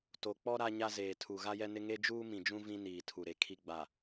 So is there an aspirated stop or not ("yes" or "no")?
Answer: yes